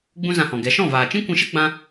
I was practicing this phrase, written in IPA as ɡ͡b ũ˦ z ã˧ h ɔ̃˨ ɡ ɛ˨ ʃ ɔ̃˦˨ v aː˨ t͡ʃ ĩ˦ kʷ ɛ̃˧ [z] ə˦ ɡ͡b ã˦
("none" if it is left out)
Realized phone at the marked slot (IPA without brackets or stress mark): ʃ